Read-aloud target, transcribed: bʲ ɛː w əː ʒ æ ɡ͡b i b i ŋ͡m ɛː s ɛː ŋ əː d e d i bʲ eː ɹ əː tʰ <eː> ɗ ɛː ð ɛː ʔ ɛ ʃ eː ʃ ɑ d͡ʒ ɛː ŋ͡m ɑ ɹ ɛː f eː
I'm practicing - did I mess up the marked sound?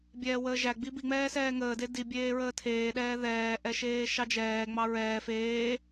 no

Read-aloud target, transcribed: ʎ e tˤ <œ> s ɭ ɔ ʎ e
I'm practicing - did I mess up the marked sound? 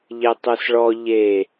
yes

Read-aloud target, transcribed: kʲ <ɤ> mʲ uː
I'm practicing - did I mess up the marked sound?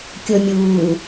no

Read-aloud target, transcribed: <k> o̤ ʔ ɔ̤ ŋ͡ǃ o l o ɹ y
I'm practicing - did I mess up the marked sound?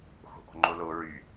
yes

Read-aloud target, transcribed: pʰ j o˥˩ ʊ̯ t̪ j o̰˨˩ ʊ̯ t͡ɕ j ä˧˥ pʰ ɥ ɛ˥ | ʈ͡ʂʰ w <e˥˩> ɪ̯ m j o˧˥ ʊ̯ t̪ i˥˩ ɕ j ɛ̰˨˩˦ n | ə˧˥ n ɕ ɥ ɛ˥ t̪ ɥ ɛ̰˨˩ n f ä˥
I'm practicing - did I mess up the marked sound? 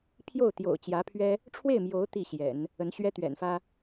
no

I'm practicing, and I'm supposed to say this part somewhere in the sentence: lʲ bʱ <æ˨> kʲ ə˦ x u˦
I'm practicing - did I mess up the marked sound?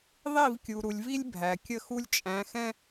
no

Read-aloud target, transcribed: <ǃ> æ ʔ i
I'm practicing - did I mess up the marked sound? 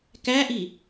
yes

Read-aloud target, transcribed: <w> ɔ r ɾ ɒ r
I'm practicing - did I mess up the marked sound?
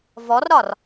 yes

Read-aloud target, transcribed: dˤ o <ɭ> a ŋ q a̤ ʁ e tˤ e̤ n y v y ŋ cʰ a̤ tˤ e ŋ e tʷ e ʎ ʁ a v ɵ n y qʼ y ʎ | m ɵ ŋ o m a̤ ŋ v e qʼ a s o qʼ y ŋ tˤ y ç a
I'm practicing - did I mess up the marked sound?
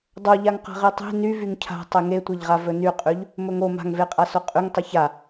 yes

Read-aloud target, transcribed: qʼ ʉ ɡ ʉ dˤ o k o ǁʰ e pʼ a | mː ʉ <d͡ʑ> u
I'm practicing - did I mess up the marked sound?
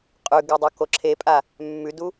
yes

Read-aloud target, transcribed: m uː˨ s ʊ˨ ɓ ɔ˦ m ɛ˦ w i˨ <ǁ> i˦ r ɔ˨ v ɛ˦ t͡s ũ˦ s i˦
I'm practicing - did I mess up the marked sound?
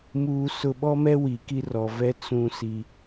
yes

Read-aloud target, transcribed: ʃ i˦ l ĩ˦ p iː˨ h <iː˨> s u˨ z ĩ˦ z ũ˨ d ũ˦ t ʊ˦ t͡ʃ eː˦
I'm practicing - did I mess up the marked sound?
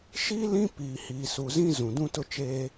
no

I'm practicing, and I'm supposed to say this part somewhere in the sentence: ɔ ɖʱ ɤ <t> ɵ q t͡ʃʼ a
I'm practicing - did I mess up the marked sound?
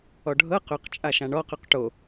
yes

